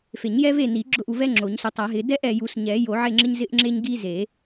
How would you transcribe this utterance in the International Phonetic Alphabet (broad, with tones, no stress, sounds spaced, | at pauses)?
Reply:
f e˨˩˦ ɲ j ɛ˦ v e˦˨ n i˨˩˦ ɡ͡ǁ ʊ˦˨ ʔ u˦˨ v ɛ˦ ŋ͡ǁ o˨˩˦ ɲ s ʊ˨˦ tˤ a˨˩˦ ɦ ɪ˨˦ d ɛ˦ ʔ ɛ˨ j u˨˩˦ s ɲ ɛ˨˩˦ j o˨˩˦ ʕ e˦˨ ŋ͡ǁ ɪ˦ ɲ z ɪ˦ ʔ ŋ͡ǁ e˦ ɲ ɡ i˦ z e˨˩˦